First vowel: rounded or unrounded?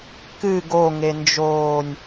unrounded